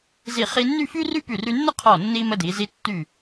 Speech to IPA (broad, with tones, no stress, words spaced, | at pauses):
zi˧˩χi˧nːy˥˧ fy˥ry˥py˧˩ ry˧nːə˥qʰɔ˧˩ nːi˧ mə˧di˩˧zi˧ tːy˧˩